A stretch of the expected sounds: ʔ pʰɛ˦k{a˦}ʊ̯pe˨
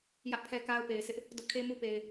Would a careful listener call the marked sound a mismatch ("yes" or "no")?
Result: no